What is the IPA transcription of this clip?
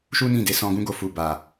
ʃu˦nĩ˦˨de˧ sɔ̃˧ɡũ˦ɡo˧ fu˨ba˨

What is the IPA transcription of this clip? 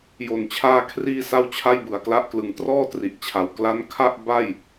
jo˨˩nt͡ɕʰaː˧kʰriː˧ sa˥˩wt͡ɕʰa˥˩jbɯ˨˩a̯kla˥˩ʔ klɯ˩˦ŋtrɔː˥˩tri˨˩ʔt͡ɕʰa˨˩w kla˦˥nkʰa˥˩ʔ ba˥˩j

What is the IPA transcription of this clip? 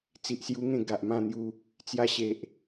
t͡si˨ʔsju˦ŋẽ˥˧ ɡa˨ʔmã˥˧n̪ju˧ | t͡sja˧ɕe˨ʔ

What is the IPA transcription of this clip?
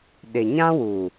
ɗɪ˨ɲã˦wu˨

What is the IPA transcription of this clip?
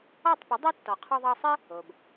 ɔ˥˩tˤpə˩˥dˤo˥ tːɔ˩qʰɔ˧ðˤɑ˧ sˤɘ˥ | o˩b

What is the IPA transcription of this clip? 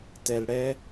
tɛ˩lɽɛ˨

